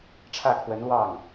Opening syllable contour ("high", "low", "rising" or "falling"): falling